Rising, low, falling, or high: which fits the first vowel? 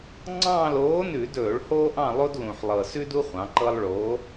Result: falling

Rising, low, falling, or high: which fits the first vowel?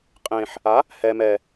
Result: low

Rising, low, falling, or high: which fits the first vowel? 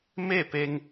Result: falling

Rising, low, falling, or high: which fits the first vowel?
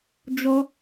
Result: high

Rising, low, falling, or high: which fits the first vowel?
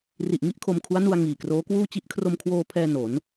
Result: low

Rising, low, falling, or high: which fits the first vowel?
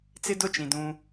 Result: high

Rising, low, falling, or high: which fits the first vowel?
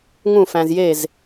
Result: falling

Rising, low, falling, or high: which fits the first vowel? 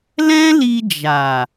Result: high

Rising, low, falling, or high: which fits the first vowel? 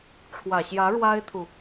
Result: low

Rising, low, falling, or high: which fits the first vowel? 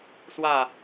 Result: falling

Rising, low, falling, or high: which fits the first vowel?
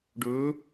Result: rising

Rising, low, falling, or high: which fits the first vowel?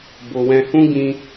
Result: low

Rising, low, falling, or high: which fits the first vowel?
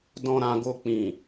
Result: low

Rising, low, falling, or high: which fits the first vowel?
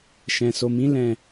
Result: low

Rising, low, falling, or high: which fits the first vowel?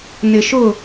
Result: low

